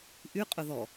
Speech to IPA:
ʔ y qʼ ʊ ð ɔ

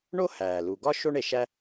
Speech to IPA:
ɳ o˥ h æː˩ l u˩ ɡ ɒ˥ ʃ o˥ ɳ e˩ ʃ æ˥

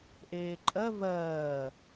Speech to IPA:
ʔ eː ǃʼ ɜ v ɜː

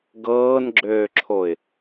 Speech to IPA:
ɡ ɤː n ɡ͡ǁ øː ǁʰ o ɪ̯

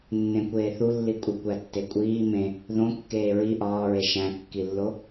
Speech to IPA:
nː ẽ kʷ eː θ u lː i kʷʼ i kʷ æ tː e kʷʼ iː m ẽ | ð õ kː eː ɹ i ʔ ɒː ɹ e ʃ æ̃ kː i lː o

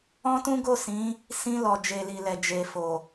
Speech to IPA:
ɔ̃˦ t ũ˦ ɡ o˦˨ s ĩ˨˦ | s ĩ˧ l ɔ˨ d͡ʒ e˨ l i˨ l ɛ˨ d͡ʒ e˨ f o˨

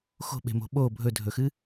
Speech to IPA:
x o̤ ɓ e̤ m o̤ ɓ o bʱ ɵ dʱ ɵ x ɨ

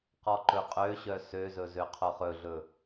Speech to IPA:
q ɔ ǃ ɵ qʼ ø ɕ œ s ø z ɵ z ø qʰ o χ ɵ ɮ ɵ

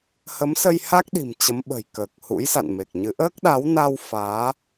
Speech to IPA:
h ə˨˦ m s ə˧ j h a˦˥ k̚ ɗ i̤˨˩ m t͡ɕ ə˨˦ m ɓ ə̤˨˩ j k əː˨˩ k̚ h ṵ˧˥ j s a̰˧˨ n m e˨˩ k̚ ɲ ɨ˨˦ ʔ əː˦˥ k̚ ɗ a˨˦ w n a˧ w f aː˨˦

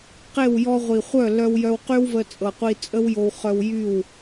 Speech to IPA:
q e˦˨ w j ɔ˧ ʁʷ i˨ χʷ œ˦˨ l œ˧ w j œ˧ w q y˦ w v ə˧ t͡sʼ ɤ˨ qʷ i˧ t͡sʼ ə˦ w j o˧ w χ œ˧ w j y˦˨ w

